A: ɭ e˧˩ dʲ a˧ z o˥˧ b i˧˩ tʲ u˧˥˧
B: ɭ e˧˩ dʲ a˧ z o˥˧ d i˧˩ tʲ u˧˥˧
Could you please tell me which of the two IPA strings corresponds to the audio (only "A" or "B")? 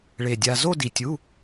B